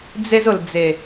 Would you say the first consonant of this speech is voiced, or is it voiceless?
voiced